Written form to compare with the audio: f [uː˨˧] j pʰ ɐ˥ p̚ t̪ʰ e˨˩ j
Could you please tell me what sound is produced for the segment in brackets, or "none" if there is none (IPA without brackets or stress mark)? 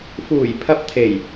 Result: uː˨˩